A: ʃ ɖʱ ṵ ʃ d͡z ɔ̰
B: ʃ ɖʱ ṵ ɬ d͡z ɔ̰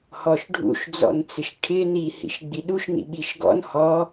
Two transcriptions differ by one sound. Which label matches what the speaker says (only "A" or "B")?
A